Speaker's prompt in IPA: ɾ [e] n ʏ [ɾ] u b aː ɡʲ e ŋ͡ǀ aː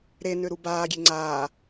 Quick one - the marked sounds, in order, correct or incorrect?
correct, correct

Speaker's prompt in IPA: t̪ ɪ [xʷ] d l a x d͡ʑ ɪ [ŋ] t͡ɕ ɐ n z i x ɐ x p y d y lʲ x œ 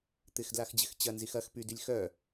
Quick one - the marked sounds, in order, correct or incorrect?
incorrect: x, incorrect: x

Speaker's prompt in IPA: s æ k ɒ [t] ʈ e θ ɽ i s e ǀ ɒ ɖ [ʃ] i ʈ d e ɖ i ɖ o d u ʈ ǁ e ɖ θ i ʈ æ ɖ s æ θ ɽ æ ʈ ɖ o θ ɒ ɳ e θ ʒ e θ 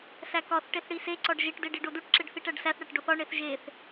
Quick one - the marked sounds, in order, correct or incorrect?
incorrect: θ, incorrect: ʒ

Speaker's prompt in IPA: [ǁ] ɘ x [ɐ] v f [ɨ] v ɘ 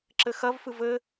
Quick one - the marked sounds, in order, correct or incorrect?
correct, correct, correct

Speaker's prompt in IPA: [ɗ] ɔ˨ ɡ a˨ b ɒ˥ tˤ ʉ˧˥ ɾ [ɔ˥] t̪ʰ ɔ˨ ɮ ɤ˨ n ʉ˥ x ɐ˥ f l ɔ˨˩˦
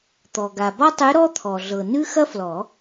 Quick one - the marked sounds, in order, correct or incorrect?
incorrect: t̪, correct

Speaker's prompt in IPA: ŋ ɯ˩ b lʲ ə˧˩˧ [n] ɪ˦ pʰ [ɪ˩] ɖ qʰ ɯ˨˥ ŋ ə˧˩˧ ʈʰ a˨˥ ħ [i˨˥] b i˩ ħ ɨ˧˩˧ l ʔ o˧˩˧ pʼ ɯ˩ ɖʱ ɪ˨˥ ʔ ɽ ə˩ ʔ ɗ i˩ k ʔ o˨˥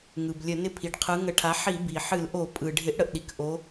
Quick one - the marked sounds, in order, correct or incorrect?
correct, incorrect: i˩, incorrect: i˧˩˧

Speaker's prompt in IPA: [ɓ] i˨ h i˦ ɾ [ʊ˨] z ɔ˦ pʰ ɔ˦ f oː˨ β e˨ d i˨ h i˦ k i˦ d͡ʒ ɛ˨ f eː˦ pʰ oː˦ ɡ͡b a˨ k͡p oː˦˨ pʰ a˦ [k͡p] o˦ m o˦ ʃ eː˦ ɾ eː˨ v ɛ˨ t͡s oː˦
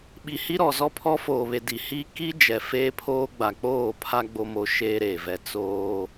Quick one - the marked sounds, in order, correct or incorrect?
correct, incorrect: ɔ˨, incorrect: ɡ͡b

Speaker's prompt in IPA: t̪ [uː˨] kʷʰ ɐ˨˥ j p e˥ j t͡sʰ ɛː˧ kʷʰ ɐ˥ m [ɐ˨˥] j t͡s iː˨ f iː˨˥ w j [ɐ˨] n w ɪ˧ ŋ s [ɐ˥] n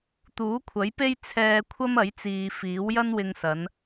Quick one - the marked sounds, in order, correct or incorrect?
incorrect: uː˨˥, correct, incorrect: ɐ˥, incorrect: ɐ˨˧

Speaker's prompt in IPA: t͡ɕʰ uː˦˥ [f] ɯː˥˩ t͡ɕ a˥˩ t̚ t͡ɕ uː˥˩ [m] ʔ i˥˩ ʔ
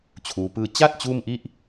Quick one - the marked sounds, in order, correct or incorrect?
incorrect: p, correct

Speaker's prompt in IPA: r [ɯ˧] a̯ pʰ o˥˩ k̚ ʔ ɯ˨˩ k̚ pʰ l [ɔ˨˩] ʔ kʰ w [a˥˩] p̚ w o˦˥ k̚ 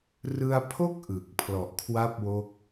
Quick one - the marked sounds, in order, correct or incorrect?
correct, correct, correct

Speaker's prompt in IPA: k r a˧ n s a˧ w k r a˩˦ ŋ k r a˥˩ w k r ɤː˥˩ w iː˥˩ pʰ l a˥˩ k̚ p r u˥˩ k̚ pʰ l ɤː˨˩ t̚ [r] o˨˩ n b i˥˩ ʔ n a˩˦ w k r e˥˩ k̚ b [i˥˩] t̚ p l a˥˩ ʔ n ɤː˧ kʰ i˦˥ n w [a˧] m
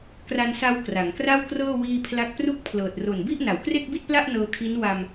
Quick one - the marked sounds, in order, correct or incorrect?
correct, correct, correct

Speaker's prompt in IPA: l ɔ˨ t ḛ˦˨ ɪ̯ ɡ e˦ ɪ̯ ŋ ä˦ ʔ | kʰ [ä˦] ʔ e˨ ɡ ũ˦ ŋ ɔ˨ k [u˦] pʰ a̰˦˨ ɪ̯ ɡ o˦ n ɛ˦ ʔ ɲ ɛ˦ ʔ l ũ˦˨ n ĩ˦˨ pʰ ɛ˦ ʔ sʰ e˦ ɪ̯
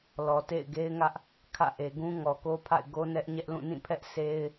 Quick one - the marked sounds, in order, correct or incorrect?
incorrect: ä̰˦˨, incorrect: o˦

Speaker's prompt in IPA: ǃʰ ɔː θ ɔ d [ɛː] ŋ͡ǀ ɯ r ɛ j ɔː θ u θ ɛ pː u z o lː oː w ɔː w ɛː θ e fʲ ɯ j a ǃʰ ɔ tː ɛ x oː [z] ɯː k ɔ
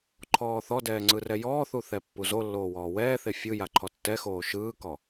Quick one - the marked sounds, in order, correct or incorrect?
correct, incorrect: ʃ

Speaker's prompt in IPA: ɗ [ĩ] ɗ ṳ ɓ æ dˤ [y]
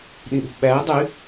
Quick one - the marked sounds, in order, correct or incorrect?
correct, correct

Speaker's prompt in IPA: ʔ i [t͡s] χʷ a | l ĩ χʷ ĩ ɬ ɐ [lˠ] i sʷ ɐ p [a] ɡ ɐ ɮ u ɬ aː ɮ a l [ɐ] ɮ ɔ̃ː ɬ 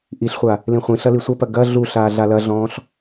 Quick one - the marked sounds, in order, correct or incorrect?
incorrect: ɬ, incorrect: l, incorrect: ɐ, correct

